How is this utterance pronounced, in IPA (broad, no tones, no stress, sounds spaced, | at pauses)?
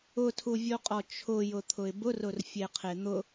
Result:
ʊ tʰ u vʲ o qʼ ɔ t͡ʃʰ ʊ j ʊ t̪ʰ ʊ ɪ̯ b ʊ r ʊ r fʲ e qʰ e n̪ ʊ